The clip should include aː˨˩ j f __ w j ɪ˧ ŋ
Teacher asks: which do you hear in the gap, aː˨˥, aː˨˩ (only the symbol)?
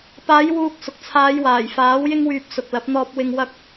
aː˨˥